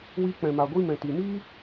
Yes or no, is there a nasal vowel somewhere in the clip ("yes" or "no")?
yes